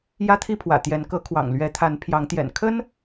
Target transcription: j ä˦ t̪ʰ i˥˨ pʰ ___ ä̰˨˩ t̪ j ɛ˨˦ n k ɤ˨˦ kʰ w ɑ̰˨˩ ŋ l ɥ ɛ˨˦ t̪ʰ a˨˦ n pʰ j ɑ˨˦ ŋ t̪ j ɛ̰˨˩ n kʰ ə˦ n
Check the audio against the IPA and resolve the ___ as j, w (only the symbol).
w